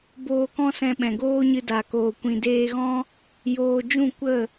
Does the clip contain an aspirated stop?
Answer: no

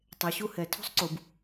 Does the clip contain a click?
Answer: yes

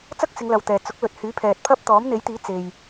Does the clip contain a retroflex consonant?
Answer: no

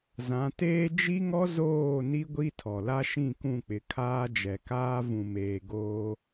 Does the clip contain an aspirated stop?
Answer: yes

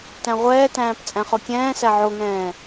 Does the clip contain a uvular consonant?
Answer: yes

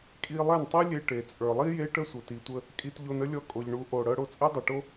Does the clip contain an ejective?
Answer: yes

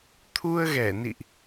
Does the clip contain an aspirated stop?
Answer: yes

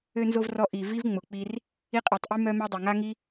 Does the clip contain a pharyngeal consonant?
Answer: no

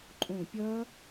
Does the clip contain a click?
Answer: yes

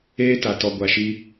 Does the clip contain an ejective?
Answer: no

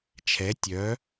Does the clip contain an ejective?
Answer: no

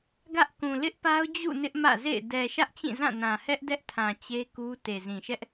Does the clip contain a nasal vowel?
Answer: yes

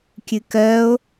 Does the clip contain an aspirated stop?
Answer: no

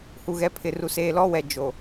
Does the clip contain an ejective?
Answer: no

